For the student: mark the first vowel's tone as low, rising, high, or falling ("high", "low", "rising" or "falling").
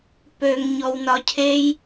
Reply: low